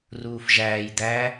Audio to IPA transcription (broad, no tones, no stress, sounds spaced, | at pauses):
r uː f ʒ æː j d̪ æ